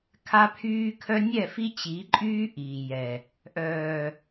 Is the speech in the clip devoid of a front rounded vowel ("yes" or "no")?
no